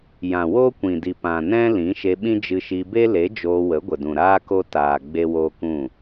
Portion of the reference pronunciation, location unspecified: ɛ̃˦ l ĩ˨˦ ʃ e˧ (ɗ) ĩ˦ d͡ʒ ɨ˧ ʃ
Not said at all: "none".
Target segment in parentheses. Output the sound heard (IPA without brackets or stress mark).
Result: ɓ